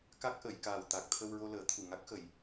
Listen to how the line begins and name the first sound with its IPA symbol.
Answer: k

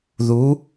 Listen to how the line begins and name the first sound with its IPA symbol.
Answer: ð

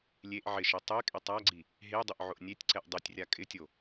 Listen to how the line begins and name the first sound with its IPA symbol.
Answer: lʲ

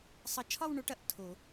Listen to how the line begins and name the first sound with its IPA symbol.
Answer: sˤ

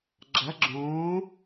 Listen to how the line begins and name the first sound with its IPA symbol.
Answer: ɡ͡ǁ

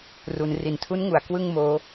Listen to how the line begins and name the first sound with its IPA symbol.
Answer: r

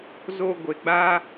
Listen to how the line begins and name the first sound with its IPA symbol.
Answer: z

